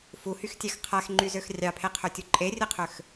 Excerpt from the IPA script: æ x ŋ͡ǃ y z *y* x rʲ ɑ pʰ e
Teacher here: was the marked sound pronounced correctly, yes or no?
no